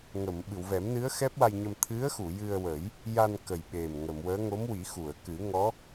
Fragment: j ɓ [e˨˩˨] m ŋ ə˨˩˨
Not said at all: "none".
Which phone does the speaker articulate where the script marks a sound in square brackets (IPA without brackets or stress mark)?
e˨˩